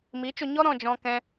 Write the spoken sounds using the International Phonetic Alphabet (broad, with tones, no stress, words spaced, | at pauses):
miː˨˦t͡ʃo˧ɲɔ˦ ɾɔ̃˧ d͡ʒɔ̃˧kɛ̃˧